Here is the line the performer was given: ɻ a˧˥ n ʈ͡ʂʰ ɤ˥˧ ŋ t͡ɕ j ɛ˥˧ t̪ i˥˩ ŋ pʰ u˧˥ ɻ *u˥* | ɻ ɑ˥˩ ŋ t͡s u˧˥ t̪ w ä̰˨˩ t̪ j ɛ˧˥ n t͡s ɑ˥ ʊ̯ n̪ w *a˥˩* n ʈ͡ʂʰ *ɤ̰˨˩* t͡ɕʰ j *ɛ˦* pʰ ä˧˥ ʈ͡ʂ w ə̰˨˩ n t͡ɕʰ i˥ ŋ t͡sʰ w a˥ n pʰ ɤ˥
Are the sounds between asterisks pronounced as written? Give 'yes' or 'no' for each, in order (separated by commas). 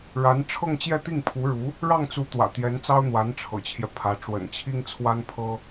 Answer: no, no, yes, yes